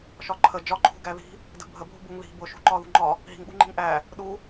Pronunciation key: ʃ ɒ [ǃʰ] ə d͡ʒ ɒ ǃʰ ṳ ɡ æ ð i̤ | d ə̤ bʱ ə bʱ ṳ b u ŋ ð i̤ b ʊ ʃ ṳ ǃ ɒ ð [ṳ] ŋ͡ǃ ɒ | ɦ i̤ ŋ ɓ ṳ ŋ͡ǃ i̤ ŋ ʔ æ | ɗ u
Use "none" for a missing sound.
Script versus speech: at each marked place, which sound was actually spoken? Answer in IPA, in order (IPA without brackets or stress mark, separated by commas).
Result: ǃʰ, ṳ